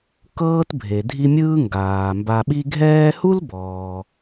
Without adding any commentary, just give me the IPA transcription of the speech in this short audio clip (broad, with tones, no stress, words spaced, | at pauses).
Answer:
kɤː˥tbʱe˩dʱi˦mʲɯː˥ ŋɡaː˩ mba˨ɓi˦ ɡʱɛː˦hu˥l bɔː˩